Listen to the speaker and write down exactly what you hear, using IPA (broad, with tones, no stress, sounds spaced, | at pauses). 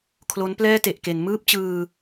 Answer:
kʰ l o˦˥ n p l ɛː˥˩ t e˨˩ ʔ k e˩˦ n m ɯː˥˩ p̚ t͡ɕ ɯː˧